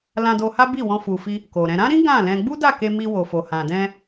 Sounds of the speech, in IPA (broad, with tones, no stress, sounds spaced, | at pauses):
l ã˧ d o˧ h a˦ b i˦˨ w ɔ̃˧ f u˨ f i˧ | k o˨ ɾ ɛ̃˧ ɾ ã˦ ɾ ĩ˦ ɡ ã˦˨ l ɛ̃˧ ɡ͡b u˦ d a˦˨ k e˧ m i˧ w o˨ f o˨ h ã˨ d ɛ̃˧